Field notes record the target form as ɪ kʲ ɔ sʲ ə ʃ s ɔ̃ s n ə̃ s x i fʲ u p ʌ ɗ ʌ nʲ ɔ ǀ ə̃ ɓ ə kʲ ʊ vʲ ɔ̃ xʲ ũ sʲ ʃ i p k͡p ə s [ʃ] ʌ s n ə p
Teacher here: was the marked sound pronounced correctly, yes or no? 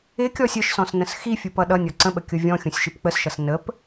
yes